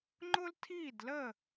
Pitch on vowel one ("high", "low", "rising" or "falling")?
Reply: high